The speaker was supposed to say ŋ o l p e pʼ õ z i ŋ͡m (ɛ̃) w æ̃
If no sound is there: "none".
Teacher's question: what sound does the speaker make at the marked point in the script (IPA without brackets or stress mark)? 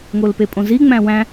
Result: æ̃